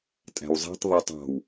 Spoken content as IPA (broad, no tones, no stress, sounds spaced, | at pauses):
tʼ æ̤ w zˤ e̤ tˤ ðˤ e tˤ ɑ̤ w